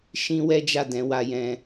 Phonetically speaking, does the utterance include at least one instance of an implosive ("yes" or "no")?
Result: no